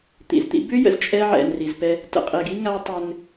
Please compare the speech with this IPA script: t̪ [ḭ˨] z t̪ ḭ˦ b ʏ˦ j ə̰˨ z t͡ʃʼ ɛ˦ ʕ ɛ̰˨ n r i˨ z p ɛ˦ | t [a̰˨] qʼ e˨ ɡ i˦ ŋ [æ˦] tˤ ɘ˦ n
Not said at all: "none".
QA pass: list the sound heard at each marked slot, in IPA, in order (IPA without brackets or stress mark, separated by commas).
ḭ˨, ə̰˨, a˦